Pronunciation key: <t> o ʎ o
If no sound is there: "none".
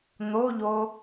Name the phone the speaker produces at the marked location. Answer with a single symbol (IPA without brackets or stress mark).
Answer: n̪